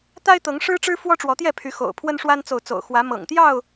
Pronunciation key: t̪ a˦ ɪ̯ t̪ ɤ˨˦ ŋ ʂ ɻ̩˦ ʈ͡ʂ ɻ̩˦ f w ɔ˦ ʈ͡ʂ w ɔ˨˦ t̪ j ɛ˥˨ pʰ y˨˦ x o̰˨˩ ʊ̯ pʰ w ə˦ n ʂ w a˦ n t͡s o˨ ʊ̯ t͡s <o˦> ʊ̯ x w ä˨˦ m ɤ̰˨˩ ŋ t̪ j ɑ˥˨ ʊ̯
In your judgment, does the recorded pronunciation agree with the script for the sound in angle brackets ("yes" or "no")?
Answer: no